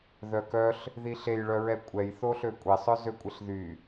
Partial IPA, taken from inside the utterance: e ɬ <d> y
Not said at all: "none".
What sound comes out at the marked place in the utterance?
ð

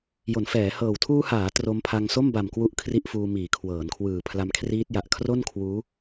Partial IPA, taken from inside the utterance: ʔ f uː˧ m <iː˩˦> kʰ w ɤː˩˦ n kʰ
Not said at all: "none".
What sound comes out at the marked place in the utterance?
iː˩˦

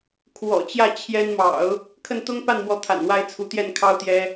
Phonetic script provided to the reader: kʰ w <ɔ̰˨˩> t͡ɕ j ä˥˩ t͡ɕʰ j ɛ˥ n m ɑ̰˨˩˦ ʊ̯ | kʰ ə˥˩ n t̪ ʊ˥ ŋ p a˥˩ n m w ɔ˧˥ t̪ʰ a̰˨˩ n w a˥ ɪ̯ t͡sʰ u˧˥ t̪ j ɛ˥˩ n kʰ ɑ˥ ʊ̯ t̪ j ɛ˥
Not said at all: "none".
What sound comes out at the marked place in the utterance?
ɔ̰˨˩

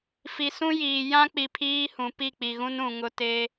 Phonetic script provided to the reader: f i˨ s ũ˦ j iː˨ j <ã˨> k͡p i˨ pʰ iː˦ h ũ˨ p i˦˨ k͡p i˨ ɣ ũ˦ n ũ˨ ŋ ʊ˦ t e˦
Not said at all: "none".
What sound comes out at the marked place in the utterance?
ã˦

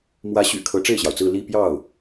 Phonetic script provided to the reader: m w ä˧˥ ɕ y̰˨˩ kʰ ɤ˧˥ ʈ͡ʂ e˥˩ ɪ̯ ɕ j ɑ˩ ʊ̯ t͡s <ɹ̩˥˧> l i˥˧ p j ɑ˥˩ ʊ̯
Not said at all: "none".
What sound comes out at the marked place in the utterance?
ɹ̩˥˧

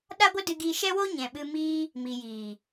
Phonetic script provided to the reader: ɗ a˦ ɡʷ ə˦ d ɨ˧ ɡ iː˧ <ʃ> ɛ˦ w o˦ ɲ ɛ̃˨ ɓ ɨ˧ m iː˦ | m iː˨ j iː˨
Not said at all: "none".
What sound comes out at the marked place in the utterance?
ʃ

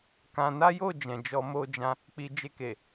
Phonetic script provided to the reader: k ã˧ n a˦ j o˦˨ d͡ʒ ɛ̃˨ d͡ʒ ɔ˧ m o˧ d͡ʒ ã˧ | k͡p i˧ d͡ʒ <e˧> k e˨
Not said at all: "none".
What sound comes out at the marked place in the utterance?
e˧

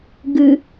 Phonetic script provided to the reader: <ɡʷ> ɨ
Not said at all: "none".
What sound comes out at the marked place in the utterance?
ɡ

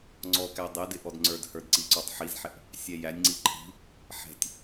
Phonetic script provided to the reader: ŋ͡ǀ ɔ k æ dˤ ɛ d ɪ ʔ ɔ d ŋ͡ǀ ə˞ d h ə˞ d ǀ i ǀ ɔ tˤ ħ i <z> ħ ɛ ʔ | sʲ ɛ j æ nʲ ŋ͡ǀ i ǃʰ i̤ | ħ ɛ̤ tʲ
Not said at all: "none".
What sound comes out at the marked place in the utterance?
z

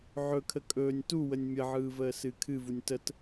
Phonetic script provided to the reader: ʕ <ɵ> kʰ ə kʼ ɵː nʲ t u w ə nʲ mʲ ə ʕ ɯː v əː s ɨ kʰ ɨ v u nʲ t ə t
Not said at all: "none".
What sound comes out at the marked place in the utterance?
ɵ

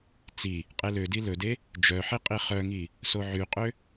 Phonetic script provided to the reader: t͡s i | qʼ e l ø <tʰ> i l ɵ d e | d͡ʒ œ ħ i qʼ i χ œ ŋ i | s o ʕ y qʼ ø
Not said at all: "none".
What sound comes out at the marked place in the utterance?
d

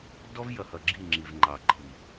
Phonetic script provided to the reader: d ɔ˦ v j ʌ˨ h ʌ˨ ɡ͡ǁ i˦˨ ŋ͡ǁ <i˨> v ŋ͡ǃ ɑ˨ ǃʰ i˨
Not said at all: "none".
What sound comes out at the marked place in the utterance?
i˨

